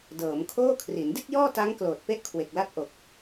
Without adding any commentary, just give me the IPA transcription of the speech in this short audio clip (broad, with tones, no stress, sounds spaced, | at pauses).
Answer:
d ɤː˩˦ m kʰ oː˥˩ kʰ r i˩˦ n d i˥˩ t̚ j ɔː˥˩ t a˦˥ ŋ k l oː˨˩ t̚ p e˦˥ ʔ kʰ w e˨˩ k̚ l a˦˥ t̚ ʔ o˨˩ k̚